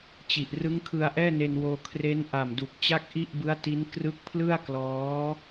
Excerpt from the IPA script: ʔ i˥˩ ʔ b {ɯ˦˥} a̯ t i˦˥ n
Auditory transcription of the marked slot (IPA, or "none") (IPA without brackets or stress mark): ɯ˦˥